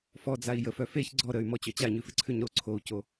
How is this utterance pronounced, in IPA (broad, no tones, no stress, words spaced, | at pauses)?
fɔ d͡zai̯jəfœ feç ɡ͡ǀɔ ɾəy̯mɔ t͡ɕœt͡ɕaɲʉfɪ ǀʰʉɲɾo ǀʰou̯co